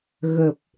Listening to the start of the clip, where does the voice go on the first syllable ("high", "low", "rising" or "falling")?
low